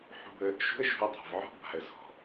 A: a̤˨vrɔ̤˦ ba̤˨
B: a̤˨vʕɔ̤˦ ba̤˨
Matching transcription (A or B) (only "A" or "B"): B